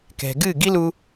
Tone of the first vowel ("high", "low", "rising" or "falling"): low